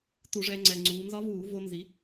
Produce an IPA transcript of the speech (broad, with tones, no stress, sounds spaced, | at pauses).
t u˧˩˧ ʐ ɛː˧ ŋ͡ǀ ɛ˨˩ ŋ͡ǀ uː˩˧ n z ɒ˧˥ v uː˧˩˧ v o˧ n z i˩˧